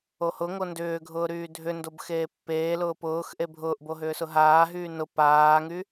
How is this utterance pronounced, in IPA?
ohʊŋo ndʏːɡʱʊː ɾyːdʱʏndob xeːpːeːlʊː pʊːx ʔebʱʊːʔbo ɦʏːsʊɦaːɦyː nʊ paːŋy

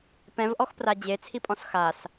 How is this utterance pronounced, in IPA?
pɛ̃vʔɔxpra d͡ʑet͡sʰipʼɔ̃s xas

